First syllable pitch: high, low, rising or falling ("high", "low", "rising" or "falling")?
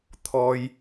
high